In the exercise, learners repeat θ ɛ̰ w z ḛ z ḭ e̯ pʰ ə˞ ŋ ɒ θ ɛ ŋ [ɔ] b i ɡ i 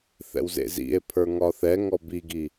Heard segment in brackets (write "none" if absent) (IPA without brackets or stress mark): ɔ